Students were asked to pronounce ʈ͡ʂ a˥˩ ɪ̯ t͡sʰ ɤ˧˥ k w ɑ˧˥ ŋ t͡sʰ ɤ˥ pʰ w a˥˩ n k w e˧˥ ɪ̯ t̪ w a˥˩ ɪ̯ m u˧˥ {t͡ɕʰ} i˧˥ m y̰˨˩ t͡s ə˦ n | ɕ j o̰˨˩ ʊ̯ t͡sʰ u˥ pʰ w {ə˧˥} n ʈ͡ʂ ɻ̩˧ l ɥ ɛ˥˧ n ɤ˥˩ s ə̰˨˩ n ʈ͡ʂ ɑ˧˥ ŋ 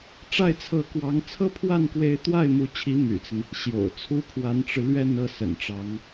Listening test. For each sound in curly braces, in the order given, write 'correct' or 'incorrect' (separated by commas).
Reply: correct, incorrect